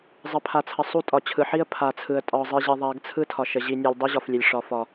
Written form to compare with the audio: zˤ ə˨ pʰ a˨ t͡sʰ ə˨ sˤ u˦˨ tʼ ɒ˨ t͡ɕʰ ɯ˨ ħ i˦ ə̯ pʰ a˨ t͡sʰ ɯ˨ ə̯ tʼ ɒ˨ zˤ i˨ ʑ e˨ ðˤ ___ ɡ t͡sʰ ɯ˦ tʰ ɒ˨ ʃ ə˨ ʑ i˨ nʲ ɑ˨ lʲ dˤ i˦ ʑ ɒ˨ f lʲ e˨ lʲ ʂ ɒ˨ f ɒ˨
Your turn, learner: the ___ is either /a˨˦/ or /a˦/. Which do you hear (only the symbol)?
a˨˦